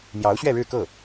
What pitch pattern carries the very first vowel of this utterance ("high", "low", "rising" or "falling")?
rising